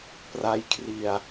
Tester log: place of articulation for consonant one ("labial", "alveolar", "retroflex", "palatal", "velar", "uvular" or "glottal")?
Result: labial